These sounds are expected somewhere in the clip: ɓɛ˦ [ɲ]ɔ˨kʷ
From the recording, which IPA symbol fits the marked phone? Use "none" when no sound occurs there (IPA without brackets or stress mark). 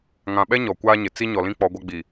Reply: ɲ